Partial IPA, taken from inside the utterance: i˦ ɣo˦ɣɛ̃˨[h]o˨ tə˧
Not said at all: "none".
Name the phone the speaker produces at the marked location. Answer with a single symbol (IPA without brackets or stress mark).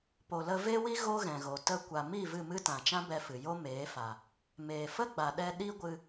ɣ